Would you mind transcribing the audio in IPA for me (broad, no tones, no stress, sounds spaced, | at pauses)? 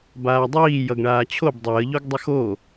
b aː dˤ iː j ʌ ɡ ɳ aː t͡ɕʰ o b dˤ əː ʎ o ɡ dˤ ə x o